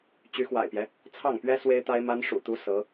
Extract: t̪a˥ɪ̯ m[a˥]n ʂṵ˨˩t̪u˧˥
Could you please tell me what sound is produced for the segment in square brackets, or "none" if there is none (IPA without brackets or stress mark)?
a˥